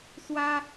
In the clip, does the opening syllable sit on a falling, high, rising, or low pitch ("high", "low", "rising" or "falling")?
high